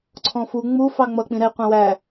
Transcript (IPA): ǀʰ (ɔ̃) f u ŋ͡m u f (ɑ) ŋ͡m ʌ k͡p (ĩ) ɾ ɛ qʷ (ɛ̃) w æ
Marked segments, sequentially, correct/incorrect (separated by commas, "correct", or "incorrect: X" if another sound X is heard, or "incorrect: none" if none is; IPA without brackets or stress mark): correct, correct, correct, incorrect: æ̃